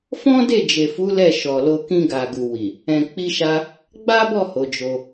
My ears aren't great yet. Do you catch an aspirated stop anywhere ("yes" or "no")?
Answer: no